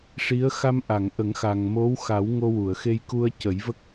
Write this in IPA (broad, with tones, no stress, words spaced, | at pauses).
ʂi˧˥ə̯ xa˧mʔa˨˩˨ŋʔə˨˩˦ŋxa˨˩ŋ mo˧˥wxa˨˩˦w ŋo˧wu˨˩˨ə̯xe˧j ku˧ə̯cə˨˩˦j və˦˥k̚